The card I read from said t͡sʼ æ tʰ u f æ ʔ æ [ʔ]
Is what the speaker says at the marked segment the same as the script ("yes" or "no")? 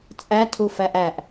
yes